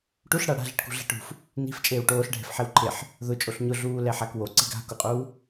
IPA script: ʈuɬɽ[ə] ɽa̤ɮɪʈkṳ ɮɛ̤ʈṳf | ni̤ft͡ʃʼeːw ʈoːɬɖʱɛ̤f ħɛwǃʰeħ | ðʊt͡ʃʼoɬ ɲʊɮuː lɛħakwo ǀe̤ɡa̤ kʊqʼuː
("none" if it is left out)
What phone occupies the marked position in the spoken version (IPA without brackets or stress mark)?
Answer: a